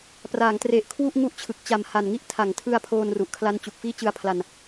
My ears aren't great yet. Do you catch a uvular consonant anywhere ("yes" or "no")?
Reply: no